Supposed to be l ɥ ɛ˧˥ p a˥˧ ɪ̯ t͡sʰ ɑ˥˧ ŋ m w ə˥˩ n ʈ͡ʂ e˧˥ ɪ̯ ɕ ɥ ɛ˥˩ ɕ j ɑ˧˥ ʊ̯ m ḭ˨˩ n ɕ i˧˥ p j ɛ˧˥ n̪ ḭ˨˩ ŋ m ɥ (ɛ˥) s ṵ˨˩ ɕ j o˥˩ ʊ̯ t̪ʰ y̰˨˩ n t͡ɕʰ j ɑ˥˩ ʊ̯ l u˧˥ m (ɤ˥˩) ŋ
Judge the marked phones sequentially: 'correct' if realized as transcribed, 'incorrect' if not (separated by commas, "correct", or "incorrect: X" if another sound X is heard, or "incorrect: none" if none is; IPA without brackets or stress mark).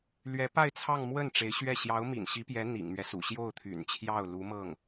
incorrect: ɛ˦, correct